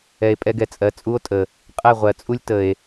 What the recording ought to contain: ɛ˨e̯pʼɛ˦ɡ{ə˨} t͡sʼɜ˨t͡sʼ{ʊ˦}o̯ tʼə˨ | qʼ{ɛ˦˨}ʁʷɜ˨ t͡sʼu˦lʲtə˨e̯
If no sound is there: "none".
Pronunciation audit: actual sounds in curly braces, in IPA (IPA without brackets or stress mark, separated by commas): ɛ˨, u˦, ɛ˦˨